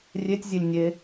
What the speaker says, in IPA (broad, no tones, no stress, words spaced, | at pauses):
rʲetʲzʲelʲ nʲe